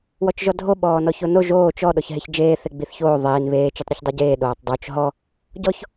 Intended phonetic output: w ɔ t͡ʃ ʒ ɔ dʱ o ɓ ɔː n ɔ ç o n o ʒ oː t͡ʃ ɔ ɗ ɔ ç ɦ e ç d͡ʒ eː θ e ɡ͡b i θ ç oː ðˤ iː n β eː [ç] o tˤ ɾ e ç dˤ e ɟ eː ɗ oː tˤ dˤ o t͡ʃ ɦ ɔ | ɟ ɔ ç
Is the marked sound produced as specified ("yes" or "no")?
no